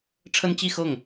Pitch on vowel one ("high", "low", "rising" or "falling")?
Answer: high